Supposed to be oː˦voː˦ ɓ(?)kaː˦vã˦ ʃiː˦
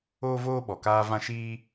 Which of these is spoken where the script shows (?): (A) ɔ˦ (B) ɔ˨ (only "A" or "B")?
B